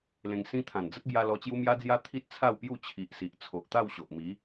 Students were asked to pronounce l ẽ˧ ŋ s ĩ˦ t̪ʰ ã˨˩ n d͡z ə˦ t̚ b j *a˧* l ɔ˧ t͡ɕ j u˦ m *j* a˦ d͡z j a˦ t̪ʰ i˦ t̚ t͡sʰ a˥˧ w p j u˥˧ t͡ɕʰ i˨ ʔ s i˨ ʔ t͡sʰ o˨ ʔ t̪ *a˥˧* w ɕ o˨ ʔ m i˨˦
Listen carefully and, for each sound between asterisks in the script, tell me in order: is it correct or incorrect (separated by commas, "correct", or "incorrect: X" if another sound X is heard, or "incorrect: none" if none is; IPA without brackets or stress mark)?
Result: correct, correct, correct